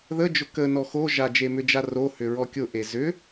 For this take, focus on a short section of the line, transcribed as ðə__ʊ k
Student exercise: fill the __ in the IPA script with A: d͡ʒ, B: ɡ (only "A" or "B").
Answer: A